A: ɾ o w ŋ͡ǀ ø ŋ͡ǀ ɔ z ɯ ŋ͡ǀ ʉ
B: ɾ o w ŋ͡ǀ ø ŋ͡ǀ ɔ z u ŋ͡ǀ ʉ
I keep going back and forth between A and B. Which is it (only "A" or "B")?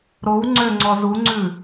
B